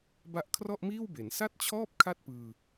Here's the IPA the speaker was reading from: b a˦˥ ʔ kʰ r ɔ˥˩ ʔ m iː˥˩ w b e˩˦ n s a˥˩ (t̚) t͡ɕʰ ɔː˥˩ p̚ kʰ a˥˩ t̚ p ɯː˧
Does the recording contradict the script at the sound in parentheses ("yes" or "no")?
no